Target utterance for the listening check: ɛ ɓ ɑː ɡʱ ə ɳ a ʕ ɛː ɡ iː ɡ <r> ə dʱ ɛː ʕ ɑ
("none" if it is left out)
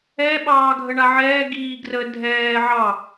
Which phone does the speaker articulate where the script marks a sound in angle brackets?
r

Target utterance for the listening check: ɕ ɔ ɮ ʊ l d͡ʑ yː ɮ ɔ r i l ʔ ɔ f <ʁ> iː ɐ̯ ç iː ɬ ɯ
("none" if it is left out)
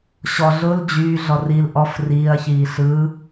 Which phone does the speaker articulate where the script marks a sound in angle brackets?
r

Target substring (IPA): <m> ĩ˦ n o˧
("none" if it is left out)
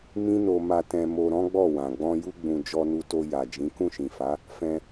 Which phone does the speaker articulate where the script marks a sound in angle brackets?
m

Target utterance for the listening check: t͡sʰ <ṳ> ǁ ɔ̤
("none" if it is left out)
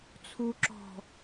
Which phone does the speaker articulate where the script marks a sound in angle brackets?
u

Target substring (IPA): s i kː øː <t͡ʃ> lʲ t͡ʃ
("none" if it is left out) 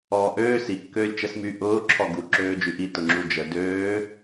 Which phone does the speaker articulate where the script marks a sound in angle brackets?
none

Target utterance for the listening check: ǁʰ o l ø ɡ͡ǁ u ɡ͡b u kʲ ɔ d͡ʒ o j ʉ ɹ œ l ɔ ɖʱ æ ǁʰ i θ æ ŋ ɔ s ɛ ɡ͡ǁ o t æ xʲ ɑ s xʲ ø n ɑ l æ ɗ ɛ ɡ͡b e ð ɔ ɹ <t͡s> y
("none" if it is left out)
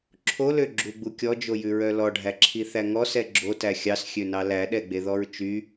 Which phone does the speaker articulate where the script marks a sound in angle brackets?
t͡ʃ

